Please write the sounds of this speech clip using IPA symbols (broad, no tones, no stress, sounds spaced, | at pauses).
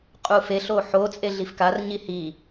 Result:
qʼ u f e ɬ o ħ o t͡sʼ e ɮ i f k a r ɲ i h i